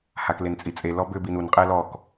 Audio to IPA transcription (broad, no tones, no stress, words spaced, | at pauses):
haklent͡sʼit͡sʼe lɔbʏ binun qʼɛlɔk